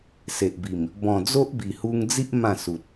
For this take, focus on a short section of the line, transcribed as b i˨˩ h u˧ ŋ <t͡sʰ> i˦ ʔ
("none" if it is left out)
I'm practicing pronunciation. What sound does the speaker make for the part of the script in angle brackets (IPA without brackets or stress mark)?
d͡z